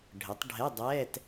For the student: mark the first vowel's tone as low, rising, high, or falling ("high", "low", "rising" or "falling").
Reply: rising